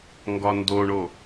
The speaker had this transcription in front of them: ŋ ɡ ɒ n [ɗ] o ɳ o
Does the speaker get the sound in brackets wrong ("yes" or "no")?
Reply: yes